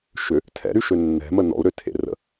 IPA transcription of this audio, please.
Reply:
ʃ ʏ | tʰ ɛ̰ ɾ y ʃ ø nː ɛ̤ m ə n ɔ̰ u̯ ɾ ø tʰ ḛ r ə̰

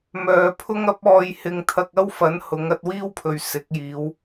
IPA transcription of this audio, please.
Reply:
m œː˨ pʰ ʊ˥ ŋ ɐ˥ p̚ ɔː˧ j h ɪ˧ ŋ t̪ʰ ɐ˧ k̚ ɐ˥ w f ɐ˨˥ n h ʊ˨˧ ŋ ɐ˧ t̚ w iː˥ w pʰ ɵ˨ ɥ s ɪ˨˥ k̚ j iː˨˧ w

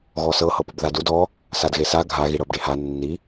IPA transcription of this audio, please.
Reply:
ɣ ɔ s ɤ h ɤ p u b ð a d u d ɔ | s a d ɣ e s a ɡʱ a ɣ i ɽ ɤ b ɖ e h a nː i

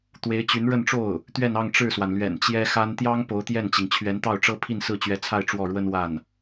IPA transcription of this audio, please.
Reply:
t̪ w e˧˥ ɪ̯ t͡ɕ y˧˥ n ɻ ə˥˧ n ʈ͡ʂ o˥˩ ʊ̯ | t̪ ɥ ɛ˥˧ n ɑ˥˧ ŋ ʈ͡ʂ ɻ̩˥˩ s w a˩ n l ɥ ɛ̰˨˩ n t͡ɕ j ɛ˥ x a˥ n t̪ j ɑ˥ ŋ p o˧˥ ʊ̯ t̪ j ɛ˥˩ n t͡ɕ i˩ ŋ t͡ɕʰ ɥ ɛ˧˥ n t̪ ɑ˥˩ ʊ̯ ʈ͡ʂ ɤ˥ pʰ i˥˧ n s ɹ̩˥˩ t͡ɕ ɥ ɛ˧˥ t͡sʰ a˥˧ ɪ̯ ʈ͡ʂ w ɔ˥˩ ɻ w ə˥ n w a˥˩ n

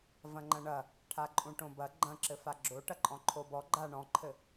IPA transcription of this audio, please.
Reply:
v ɐ̃ ŋ͡ǃ ɐ̃ ɳ ɐ | ʈʰ a ǃʼ ũ ʈ õ b ɐ ɡ͡ǃ ɐ̃ ǁ ɘ f a ɡ͡ǁ o ʈ ɐ ǃʼ ɔ̃ ǃʰ o b ɔ ɡ͡ǃ a ɳ ɔ̃ ǃʰ ɘ

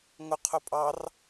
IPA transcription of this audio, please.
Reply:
ŋ ʊ qʰ ʊ pʼ ɑ r

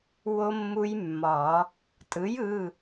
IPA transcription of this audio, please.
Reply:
w o˦˥ mː u˦˥ j mː ɒ˨˩˦ | tʼ ɯ˩˥ j ɯ˩˧˩

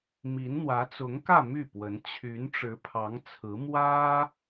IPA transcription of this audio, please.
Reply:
m i˧˥ n n̪ w ä˧˥ t͡s ʊ˧˥ ŋ k ä˥˧ m y˥˩ p w ə˧˥ n t͡ɕʰ y˧˥ n ʈ͡ʂ ɻ̩˧˥ pʰ ɑ˧˥ ŋ t͡sʰ ɹ̩˧˥ m w ä˥

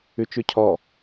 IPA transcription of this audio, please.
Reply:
ʉ t͡ʃ ʉ cʰ ɔ

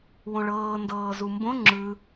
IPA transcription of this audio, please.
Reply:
w õ ɭ ɤː n d ɤː z u m b õ ŋ͡ǁ ɯ

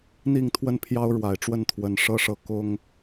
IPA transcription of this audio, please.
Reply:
n̪ i˥˧ ŋ t̪ʰ w ə˥˩ n pʰ j ɑ˥ ʊ̯ ɻ w a˨˩ ɪ̯ ʈ͡ʂ w ə˥˩ n t̪ʰ w ə˨˩ n ʂ ɤ˥˧ ʂ ɤ˥˩ k ʊ˥ ŋ

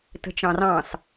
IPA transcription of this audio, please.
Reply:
t ə̤ t͡ʃ ɑ̃ r ɑ̃ s

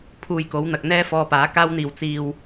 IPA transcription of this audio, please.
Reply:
pʰ uː˧ j k o˨˥ w n̪ ɐ˨ k̚ n̪ ɛː˥ f ɔː˧ p aː˨˥ k aː˥ w n̪ iː˧ w t͡s iː˧ w

